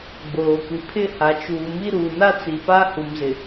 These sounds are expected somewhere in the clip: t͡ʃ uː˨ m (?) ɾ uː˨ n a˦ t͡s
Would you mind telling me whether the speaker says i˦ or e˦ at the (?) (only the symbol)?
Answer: i˦